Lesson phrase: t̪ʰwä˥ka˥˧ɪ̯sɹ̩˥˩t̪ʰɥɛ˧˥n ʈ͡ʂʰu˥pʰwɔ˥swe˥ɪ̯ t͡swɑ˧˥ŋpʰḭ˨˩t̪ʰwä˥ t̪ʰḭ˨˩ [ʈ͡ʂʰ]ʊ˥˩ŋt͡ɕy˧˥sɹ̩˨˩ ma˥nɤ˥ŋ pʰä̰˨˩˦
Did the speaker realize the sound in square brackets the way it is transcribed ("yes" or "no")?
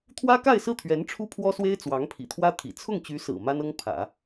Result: no